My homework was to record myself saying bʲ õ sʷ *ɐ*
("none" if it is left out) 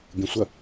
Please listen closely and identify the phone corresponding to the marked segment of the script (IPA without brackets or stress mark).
ɐ